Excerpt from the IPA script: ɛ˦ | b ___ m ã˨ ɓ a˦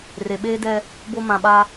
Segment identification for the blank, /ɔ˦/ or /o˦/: o˦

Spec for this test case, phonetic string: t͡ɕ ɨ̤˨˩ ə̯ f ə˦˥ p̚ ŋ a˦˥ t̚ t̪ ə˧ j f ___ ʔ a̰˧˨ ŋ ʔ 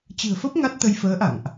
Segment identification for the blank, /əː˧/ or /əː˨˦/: əː˨˦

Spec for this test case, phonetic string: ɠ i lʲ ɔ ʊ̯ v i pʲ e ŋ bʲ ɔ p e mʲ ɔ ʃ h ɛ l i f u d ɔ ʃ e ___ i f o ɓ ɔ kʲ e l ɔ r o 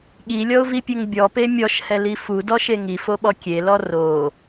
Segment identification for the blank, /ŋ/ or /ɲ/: ŋ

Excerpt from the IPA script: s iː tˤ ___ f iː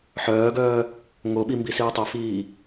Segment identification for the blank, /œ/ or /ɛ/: œ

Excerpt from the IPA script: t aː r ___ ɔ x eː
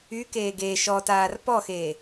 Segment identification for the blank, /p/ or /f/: p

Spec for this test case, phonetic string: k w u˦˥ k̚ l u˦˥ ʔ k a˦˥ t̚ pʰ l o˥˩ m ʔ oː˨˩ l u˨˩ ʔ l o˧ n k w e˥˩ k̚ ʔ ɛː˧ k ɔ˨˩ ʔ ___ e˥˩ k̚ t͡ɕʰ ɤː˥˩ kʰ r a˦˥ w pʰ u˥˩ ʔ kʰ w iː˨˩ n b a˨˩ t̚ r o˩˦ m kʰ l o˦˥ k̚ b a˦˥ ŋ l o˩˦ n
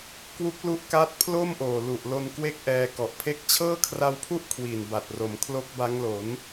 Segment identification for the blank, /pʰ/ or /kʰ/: pʰ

